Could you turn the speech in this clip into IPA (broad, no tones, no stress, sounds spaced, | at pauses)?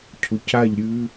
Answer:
cʰ u c a ʎ ɾʲ ʉ